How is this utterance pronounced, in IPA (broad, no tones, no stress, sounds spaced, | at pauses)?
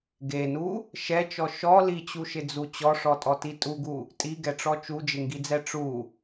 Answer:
ɡ e n u | ʃ ɛ t͡ʃ ɔ ʃ ɔ l i t͡ɕ u ʃ ɪ d͡z u t͡ɕ ɔ ʂ ɔ tʼ ɔ t i tʼ u ɡ u | tʼ i ɡ ɛ ʈ͡ʂ ɔ t͡ʃ u d͡ʒ ɪ ŋ ɡ i d͡z ɛ ʈ͡ʂ u